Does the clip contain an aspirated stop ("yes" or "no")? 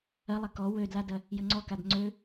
no